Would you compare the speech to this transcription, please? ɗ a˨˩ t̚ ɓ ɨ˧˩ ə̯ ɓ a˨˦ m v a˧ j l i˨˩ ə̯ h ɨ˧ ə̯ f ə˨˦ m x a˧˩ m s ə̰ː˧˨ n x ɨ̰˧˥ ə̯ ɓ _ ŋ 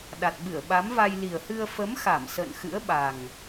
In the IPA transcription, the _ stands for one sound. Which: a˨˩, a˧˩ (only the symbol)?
a˨˩